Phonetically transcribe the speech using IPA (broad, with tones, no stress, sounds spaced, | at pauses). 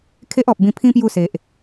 kʰ e˦ ʔ ɔ˨ p̚ b ĩ˧ pʰ ĩ˦ p j u˥˧ s e˨ ʔ